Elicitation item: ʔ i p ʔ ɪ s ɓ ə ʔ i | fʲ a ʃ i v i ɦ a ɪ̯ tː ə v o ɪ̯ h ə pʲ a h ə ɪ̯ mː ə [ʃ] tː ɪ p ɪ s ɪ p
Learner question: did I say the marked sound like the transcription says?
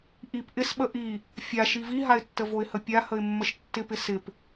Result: yes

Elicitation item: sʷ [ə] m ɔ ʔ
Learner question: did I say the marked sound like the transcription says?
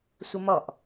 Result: yes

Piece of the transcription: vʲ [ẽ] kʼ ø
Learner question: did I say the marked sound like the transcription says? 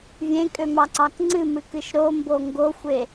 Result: yes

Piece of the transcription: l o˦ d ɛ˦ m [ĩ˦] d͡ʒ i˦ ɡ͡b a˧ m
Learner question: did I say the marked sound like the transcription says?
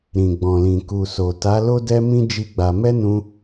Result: yes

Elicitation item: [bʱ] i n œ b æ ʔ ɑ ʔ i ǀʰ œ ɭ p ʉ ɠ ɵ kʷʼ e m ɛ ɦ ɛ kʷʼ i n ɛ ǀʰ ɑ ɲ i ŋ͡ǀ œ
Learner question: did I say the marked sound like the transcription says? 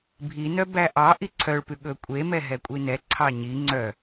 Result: yes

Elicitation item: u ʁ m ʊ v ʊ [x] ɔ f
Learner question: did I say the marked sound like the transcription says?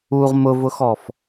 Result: yes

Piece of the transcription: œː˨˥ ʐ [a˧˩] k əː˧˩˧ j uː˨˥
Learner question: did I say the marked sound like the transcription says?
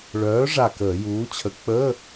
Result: yes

